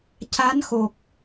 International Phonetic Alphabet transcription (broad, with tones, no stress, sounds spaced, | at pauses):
c a˧˥ n x o˨˩ k̚